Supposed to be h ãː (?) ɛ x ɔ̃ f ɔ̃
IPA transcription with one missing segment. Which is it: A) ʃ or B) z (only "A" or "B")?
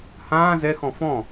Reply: B